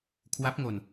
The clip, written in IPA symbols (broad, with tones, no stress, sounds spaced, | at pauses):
kʰ w a˦˥ p̚ ŋ o˧ n